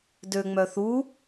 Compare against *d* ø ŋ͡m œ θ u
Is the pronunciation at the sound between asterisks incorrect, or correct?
correct